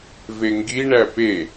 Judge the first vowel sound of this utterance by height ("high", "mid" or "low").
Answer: mid